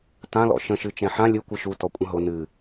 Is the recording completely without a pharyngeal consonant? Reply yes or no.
no